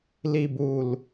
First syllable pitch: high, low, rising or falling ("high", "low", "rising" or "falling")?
low